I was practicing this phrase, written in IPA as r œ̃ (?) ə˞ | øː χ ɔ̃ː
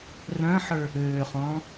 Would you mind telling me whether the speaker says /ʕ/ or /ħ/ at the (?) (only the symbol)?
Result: ħ